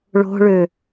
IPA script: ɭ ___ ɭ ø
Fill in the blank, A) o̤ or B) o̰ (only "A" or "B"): A